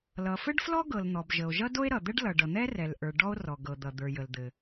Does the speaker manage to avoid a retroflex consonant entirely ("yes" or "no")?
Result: no